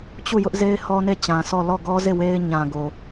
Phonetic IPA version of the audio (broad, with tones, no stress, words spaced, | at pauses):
t͡ɕu˦˨jʊ˦ʔze˦ɪ̯ hɔ˦ne˦˨t͡ɕã˨sɔ˦˨ lɔ˦˨ɡɔ˦ze˦˨ we˦ɪ̯ɲã˨ɡo˨